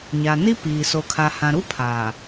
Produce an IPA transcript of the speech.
ɲ a˨ n i˦ p iː˨ s o˨ kʰ a˨ h ã˨ ɾ u˦ pʰ aː˨

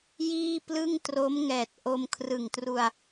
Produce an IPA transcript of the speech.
j iː˥˩ p l ɯ˥˩ ŋ t r o˦˥ m ŋ ɛː˨˩ t̚ ʔ o˧ m kʰ r ɯ˨˩ ŋ t r u˧ a̯

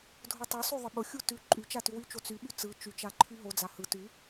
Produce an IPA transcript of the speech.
dʱ ʊ tˤ u sˤ ʉ ðˤ ə ɓ ʊ xʲ u t ʉ ǃʼ y t͡ʃ a t ʉ w y t͡ʃ o t͡s y ɓ y t͡s ɯ t͡ʃ y t͡ʃ a ǃʰ y ɦ o d͡z a h ɯ t ʉ

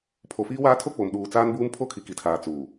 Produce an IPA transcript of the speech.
pʰ o˨ f iː˦ w aː˦ tʰ o˦ k͡p o˨ m ɗ uː˨ t͡s aː˦ n b uː˦ m pʰ o˦ kʰ i˨ k i˨ tʰ aː˨ t͡s uː˨

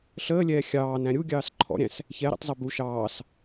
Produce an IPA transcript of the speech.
ɬ əː lʲ ɛː xʲ ɑː n æ̃ ɾʲ u ɡʲ ɑː s ǃʰ ɔ̰ ɾʲ æ̃ s | ç ɛ ɾ ḭ tˤ zˤ i b u ʃ ɑː s

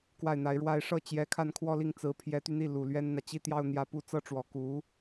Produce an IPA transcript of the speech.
k w a˥˩ ɪ̯ n̪ a˧˥ ɪ̯ ɻ w a˥ ɪ̯ ʂ ɤ˥˩ t͡ɕ j ɛ˧˥ kʰ a˥˧ n kʰ w ɔ˥˧ l i˥˩ ŋ t͡s ɹ̩˧˥ pʰ j ɛ˧˥ t̪ y˧ n̪ i˥˩ l u˨˩ l ɥ ɛ˥ n n̪ ä˨ t͡ɕ i˥˧ t̪ j ɑ˥˧ ʊ̯ n̪ j ä˥˧ p u˥˩ t͡s ɤ˥ ʈ͡ʂ w ɔ˨˩ k u˧˥

